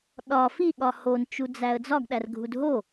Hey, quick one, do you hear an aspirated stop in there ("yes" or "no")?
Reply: no